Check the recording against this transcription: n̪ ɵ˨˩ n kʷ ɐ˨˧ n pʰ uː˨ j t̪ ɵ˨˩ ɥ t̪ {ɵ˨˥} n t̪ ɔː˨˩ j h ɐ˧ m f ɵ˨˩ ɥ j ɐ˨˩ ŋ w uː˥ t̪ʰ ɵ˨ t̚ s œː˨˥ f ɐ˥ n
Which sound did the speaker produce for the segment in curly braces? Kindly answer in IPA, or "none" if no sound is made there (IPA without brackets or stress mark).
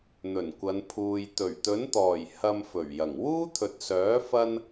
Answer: ɵ˨˥